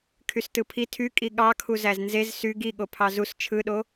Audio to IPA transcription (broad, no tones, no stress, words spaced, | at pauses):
kʰystɯpʰi tʰykʼi ɠɑkʰuzæz nzez sy ɡi ɠopʰɑzus t͡ʃʰɯɗo